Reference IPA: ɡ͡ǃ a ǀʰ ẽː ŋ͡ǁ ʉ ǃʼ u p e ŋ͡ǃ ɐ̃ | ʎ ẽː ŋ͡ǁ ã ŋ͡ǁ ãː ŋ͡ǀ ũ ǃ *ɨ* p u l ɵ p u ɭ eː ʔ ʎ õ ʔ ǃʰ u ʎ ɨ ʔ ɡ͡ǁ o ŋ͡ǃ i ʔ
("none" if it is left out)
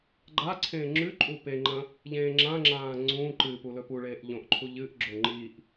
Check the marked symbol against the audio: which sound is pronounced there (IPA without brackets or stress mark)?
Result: ɨ